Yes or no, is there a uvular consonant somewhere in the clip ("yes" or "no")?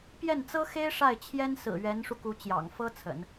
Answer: no